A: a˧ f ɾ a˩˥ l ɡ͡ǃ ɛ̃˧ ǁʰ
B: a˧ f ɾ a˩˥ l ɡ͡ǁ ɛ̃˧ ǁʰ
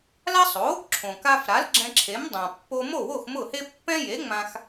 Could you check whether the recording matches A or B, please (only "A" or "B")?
B